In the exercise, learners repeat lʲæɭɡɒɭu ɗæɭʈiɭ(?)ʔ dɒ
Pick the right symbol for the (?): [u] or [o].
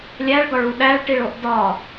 o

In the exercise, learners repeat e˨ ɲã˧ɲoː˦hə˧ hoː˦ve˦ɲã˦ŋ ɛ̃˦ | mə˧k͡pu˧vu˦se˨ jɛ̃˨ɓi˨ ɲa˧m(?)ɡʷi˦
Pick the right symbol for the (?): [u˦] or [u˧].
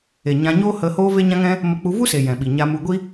u˧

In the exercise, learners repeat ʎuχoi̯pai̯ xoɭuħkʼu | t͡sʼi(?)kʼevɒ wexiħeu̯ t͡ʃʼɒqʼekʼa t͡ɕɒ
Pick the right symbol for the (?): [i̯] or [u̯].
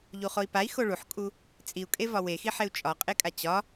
u̯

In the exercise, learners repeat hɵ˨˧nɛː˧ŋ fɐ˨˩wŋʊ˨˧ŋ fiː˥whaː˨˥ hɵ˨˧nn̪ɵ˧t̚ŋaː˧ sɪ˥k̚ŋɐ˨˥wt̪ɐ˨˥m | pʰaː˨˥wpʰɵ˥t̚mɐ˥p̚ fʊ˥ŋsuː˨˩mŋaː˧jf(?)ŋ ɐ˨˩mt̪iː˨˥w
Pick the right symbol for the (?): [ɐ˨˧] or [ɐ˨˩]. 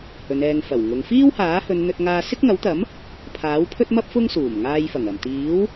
ɐ˨˩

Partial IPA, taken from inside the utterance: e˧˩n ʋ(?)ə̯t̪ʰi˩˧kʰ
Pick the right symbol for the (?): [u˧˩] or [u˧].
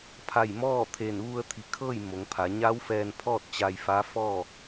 u˧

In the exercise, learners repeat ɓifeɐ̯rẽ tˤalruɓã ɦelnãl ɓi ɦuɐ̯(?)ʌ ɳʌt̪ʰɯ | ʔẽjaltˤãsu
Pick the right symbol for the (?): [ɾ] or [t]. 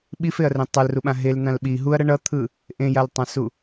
ɾ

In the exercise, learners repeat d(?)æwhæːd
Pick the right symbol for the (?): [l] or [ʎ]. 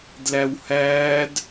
l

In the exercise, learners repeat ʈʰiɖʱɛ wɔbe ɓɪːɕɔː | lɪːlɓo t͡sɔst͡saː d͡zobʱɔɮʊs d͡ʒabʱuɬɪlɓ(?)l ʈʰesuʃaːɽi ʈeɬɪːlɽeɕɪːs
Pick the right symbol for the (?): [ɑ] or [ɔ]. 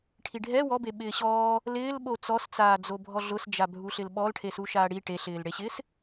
ɔ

